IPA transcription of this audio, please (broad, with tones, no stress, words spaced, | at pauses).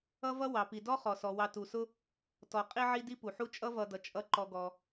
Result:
ʌ˥vʌ˥wɑ˩pi˩ dɔ˥χɔ˩sɔ˩ wɑ˨tu˩sʊ˦ | tɔ˨ qʼi˦ʕi˦ di˦pu˩ħu˦ t͡ʃʼʌ˥vʌ˨dʌ˩ t͡ʃʼʌ˨ ǃɔ˨ɡɔ˩